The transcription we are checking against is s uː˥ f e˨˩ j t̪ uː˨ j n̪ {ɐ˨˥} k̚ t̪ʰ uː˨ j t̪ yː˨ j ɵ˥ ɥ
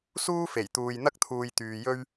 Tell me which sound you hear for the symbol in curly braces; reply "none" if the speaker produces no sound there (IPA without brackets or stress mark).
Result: ɐ˥